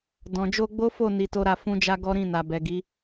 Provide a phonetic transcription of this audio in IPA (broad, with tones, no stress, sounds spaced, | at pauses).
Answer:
d ɔ̃˨ d͡ʒ o˧ ɡ͡b o˦ f o˦˨ n i˧ t o˦ ɾ a˧ f ũ˦ d͡ʒ a˦ ɡ ɔ˦ ɾ ĩ˦˨ n a˨ b ɛ˨ ɡ i˨˦